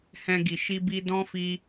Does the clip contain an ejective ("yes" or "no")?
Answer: no